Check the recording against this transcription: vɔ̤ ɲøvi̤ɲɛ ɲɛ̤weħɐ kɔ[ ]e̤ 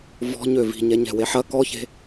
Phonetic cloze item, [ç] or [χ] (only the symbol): ç